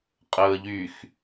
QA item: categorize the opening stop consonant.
ejective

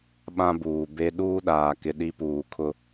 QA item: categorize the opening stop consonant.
implosive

